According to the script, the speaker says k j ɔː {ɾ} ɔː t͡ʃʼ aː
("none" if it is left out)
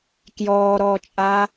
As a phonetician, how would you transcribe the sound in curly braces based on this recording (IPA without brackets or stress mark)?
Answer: ɾ